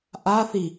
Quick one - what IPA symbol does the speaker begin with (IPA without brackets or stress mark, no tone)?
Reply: ʔ